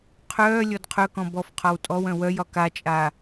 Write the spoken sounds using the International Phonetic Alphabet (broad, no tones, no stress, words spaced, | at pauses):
qʰœː lʲɔdqʰœkɔ̃ bɔf qʰɒwtʼɔwœ̃ wœjɒ kat͡ʃʼa